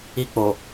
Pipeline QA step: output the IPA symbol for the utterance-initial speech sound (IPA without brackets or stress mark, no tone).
i